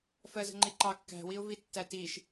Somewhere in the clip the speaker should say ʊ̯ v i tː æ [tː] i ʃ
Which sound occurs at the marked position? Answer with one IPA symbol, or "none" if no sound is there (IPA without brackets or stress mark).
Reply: t